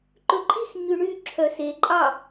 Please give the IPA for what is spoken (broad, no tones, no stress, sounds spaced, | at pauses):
ǃ ɵ ǃʼ i x ɲ ʉ ɳ y ǁʰ œ s e ǃʼ ɑ